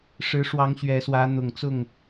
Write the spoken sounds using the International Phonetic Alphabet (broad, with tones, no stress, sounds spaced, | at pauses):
ʂ ɻ̩˨˦ ʂ w ɑ˨˦ ŋ ɕ ɥ ɛ˨˦ s w ä˨˦ n̪ ʊ˨˩ ŋ t͡s ʊ˥˨ ŋ